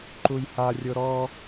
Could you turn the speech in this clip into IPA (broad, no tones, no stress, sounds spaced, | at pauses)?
ǃ u j h a rʲ o ɾ ɔ